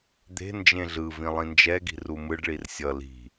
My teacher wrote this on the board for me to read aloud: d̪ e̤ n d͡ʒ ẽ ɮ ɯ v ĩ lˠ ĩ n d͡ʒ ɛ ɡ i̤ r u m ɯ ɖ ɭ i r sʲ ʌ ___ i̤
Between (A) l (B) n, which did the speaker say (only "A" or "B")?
A